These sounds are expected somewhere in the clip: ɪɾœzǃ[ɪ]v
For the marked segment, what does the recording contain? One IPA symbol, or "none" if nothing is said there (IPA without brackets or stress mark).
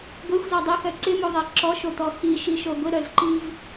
i